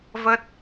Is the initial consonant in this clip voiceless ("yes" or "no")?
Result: no